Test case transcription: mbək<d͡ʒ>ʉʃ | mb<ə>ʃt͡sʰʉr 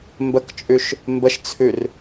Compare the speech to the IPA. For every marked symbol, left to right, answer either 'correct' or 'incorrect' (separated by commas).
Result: incorrect, correct